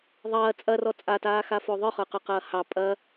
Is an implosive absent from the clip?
yes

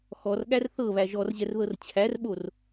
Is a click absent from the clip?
yes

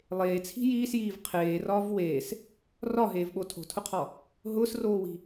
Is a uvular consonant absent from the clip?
no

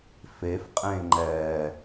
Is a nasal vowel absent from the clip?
no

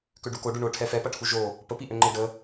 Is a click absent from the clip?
no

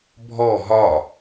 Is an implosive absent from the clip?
yes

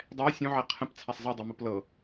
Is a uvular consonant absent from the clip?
no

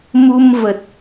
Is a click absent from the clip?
yes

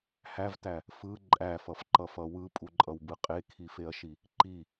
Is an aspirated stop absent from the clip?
no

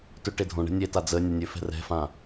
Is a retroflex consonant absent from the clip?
no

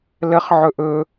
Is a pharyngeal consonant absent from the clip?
no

